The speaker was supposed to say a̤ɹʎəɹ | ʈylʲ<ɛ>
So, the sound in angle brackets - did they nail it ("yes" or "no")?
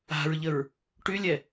yes